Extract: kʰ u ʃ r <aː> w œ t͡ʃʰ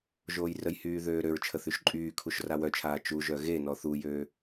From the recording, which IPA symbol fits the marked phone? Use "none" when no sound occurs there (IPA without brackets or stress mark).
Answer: a